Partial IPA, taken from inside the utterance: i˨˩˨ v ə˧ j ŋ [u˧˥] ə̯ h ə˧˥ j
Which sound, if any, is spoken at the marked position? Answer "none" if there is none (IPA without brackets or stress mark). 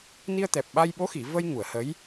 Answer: u˨˩˨